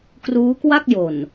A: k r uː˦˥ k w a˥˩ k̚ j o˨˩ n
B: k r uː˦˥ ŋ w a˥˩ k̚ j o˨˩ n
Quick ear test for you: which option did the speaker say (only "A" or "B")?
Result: A